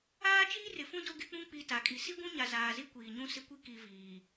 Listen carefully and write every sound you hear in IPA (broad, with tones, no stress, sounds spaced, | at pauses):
aː˦ t͡ʃ iː˦ r ɪ˨ f ũ˦ d o˦ ɡ ɪ˦ k͡p ũ˦ k͡p i˨ t a˨ kʼ i˨ s i˦ ɡʷ ũ˦ ɲ a˨ z aː˨ z i˦ kʷ iː˨ ɲ ũ˦ s ɪ˦ kʷ i˦ k i˨ v iː˨